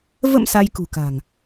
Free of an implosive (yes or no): yes